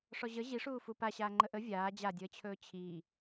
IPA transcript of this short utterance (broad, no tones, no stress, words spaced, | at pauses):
ʂɔʑə ʑiʂuː fupaɕaː ŋ͡ǃəʔə vʲaː d͡ʑadʲəːt͡ɕʰɵː t͡ɕʰiː